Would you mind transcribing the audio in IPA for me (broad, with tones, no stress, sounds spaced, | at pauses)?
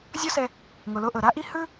zʲ ɔ˥ s ɛ˧ | ŋ o˩ l o˧ ʔ ɤ˩ ɾ a˥ ʔ i˥ h ɯ˥